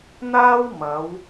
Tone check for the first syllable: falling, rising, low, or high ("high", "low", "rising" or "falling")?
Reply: high